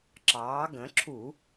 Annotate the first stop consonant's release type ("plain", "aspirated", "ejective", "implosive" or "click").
click